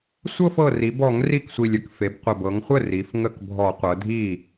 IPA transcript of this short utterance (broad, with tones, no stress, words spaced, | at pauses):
sʷɤ˥˧fɤ˨˩ri˩˧bɔ˧˩˧ŋ ri˥˩ksʷi˨˩lʲə˥˩kfe˩˧b qʷə˨˩bɤ˩˧ŋχʷə˥˩ ri˩˧f ŋə˥˩kbʱɔ˧˩˧ qʷɤ˩˧dʱi˥˩